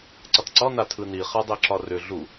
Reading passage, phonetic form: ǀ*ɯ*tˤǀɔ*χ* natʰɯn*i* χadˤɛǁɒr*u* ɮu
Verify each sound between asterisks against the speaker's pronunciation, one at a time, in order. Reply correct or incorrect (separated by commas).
incorrect, incorrect, correct, incorrect